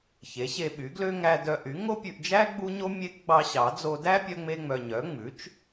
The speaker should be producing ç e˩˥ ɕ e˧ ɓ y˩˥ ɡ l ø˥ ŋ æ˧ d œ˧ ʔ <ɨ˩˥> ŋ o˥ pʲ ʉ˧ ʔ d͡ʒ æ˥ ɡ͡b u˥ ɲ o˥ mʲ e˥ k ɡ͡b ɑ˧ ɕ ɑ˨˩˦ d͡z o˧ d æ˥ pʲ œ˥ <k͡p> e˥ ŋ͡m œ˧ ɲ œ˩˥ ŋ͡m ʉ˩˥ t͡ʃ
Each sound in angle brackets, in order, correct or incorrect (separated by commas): incorrect, incorrect